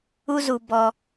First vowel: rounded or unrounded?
rounded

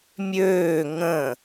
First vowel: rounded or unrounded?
rounded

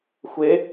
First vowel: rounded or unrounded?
unrounded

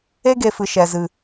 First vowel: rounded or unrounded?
unrounded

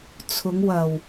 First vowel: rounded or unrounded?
rounded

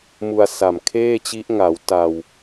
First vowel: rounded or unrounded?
rounded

